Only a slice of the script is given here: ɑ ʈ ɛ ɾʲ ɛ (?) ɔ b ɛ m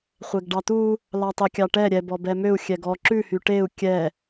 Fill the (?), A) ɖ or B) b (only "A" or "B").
B